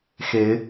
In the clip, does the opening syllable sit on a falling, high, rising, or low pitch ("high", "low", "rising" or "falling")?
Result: rising